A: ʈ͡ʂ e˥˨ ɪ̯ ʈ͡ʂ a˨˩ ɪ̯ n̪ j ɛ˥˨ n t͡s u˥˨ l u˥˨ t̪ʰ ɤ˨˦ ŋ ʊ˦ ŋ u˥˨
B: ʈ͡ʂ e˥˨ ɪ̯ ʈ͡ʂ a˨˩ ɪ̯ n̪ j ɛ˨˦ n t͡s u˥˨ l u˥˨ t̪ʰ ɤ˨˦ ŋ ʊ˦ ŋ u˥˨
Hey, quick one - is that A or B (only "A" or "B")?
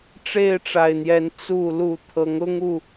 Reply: B